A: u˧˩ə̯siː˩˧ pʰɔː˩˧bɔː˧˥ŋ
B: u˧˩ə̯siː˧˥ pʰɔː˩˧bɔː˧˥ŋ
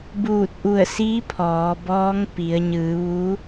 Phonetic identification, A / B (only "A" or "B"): B